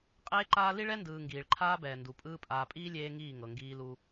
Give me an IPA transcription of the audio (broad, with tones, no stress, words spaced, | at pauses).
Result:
qʼeː˦ǃaː˦ li˦ɭɛ˦ndɯː˨ ŋɡiː˨ɭǃʰaː˦bɛː˨ ndu˨pʼɯː˦ pʼaː˨pʼiː˦ lʲeː˦ŋiː˦˨ŋɤ˨ ŋɡiː˦lu˦